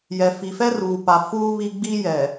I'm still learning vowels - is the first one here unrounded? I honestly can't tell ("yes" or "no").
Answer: yes